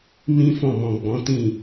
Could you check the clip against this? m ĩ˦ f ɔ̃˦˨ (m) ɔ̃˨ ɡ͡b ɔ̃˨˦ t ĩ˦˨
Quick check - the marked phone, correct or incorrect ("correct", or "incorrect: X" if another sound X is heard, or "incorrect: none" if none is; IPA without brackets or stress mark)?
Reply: correct